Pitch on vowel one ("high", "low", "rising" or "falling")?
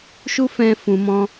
high